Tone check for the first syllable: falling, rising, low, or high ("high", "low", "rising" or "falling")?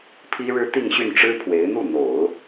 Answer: high